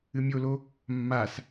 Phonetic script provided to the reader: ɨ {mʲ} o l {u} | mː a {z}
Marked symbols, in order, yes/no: yes, no, no

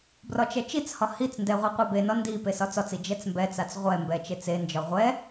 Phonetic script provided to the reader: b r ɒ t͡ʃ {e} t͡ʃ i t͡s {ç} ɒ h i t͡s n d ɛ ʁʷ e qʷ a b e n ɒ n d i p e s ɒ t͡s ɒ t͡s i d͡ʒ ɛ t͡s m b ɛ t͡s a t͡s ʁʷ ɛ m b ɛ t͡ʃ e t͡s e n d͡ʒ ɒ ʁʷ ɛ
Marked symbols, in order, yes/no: no, no

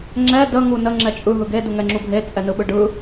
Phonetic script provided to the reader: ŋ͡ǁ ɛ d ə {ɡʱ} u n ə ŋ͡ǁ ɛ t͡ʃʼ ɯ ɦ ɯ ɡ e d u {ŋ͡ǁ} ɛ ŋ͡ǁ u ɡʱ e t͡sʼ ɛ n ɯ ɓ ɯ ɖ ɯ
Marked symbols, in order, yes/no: no, no

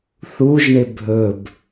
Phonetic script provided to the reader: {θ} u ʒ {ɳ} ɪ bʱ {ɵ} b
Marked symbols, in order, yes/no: yes, yes, yes

